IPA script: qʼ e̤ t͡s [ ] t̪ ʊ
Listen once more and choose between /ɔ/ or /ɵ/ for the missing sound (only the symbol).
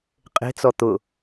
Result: ɔ